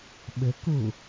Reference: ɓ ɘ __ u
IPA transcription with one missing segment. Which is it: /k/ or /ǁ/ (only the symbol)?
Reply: k